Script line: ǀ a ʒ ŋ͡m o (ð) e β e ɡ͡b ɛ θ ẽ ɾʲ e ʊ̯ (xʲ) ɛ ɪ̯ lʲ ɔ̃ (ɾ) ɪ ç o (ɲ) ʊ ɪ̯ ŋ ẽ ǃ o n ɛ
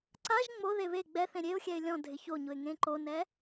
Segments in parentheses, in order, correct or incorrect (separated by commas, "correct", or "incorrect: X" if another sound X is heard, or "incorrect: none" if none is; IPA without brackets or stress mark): correct, correct, incorrect: dʱ, correct